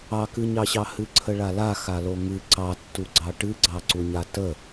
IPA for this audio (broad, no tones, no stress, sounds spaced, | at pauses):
ɑ k ɨ ɲ ɑ ɕ ɑ h ɨ ǀʰ ə ɭ a l a x a l o ŋ ɨ ǀ ɑ tː u ɡ͡ǀ ɑ ʈ ɨ ɡ͡ǀ ɑ ǀ u ɲ a t ə